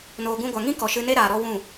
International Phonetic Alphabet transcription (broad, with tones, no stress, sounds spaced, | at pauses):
n oː˨ ɡ ũ˧ ɡʷ a˨ ŋ ĩ˦ k ɔ˨ ʃ ɨ˧ n e˦ ɾ aː˨ ɾ ɔ˧ w ũ˦˨